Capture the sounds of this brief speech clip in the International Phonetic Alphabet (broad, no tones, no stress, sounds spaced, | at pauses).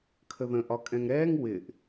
kʰ ə ð ə̃ ʔ ɒ kʼ ɛ̃ ŋ ɾ ɛː ŋ w ɪ ʔ